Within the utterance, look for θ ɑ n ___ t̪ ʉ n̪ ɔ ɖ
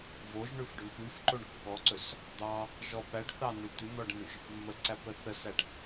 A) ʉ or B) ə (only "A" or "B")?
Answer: A